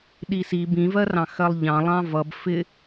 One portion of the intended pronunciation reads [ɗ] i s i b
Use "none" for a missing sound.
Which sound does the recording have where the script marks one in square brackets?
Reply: ɗ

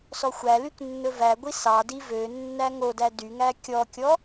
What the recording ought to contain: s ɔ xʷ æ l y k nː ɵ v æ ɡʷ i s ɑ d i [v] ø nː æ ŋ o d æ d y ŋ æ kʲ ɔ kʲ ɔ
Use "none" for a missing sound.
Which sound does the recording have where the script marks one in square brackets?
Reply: v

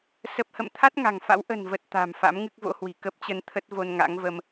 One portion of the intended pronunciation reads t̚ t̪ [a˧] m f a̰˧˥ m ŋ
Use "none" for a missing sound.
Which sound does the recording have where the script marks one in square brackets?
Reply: a̤˨˩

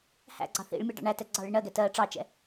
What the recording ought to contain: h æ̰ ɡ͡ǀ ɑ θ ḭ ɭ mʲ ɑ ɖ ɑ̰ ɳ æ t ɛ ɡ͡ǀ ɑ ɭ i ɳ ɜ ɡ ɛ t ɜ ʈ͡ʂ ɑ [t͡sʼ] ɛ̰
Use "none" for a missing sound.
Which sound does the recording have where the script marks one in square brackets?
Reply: t͡ʃ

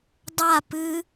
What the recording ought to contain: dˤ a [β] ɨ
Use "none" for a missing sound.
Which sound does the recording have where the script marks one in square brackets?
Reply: p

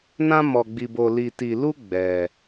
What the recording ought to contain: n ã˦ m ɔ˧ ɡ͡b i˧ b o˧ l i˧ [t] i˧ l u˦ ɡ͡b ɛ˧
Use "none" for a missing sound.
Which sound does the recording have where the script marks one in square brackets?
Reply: t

